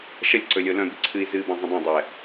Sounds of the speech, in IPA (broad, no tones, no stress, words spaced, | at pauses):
ʃʌlʲǀɵlʲo lœ̃bɨ ǀʰɨi̯zɨːbã zˤə̃dˤœ̃ dˤɛ